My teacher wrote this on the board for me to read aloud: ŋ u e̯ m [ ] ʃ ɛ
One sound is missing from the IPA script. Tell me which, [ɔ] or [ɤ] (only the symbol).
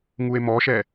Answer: ɔ